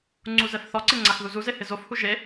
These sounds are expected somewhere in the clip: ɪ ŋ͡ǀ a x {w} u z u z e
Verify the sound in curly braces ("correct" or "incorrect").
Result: incorrect